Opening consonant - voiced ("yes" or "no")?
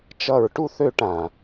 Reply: no